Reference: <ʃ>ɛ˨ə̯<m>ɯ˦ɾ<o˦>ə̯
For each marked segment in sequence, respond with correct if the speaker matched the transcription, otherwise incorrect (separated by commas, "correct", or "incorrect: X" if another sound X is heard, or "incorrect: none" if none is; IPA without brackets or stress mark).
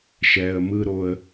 correct, correct, correct